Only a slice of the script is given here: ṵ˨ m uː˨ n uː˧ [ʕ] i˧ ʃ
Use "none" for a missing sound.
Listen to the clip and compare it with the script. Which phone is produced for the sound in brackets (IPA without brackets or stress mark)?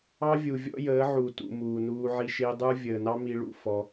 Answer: ʕ